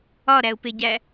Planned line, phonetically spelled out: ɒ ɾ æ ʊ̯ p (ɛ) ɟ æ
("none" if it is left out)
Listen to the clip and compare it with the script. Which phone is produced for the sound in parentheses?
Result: e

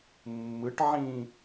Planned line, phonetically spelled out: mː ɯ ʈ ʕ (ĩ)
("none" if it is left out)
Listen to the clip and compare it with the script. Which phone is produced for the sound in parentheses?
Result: ĩ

